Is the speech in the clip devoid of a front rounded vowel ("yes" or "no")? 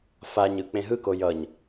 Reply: yes